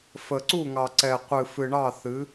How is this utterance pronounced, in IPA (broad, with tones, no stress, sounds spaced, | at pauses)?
f ə˨ ǀ u˦˨ ŋ ɑ˨ ǀ ɛ˨ qʷ ɨ˨ f ɨ˨ ɳ ɑ˦˨ θ ɨ˨˦